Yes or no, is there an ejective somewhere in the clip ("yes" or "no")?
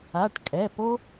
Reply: yes